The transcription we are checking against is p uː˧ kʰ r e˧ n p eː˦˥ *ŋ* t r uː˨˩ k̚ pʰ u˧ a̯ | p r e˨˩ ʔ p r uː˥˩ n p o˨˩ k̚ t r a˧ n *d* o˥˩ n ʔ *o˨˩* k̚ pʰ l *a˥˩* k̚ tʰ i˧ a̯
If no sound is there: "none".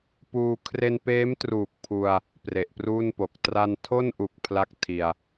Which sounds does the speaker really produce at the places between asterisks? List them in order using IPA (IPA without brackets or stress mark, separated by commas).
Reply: m, tʰ, u˨˩, a˥˩